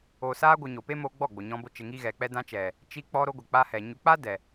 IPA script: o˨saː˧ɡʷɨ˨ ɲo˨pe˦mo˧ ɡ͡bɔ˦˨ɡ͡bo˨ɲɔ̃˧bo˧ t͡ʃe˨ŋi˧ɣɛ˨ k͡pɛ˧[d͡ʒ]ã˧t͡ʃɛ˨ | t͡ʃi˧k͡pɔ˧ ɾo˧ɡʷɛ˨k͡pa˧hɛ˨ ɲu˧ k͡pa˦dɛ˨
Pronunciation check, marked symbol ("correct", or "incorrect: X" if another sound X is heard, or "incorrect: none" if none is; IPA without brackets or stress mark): incorrect: d